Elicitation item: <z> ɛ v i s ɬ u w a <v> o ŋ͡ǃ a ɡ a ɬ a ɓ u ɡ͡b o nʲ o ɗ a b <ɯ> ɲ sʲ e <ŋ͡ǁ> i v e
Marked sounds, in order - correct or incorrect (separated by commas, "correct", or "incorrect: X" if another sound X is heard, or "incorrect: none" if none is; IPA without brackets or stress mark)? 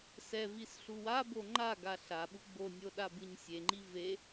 incorrect: s, incorrect: b, correct, incorrect: ŋ͡ǃ